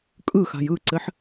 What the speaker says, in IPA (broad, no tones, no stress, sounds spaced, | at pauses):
kʼ ɯ x a̤ j ɯ ǀ ɘ ħ